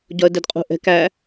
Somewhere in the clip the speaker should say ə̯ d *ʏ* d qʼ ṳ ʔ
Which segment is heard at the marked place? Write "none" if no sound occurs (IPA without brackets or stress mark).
ɛ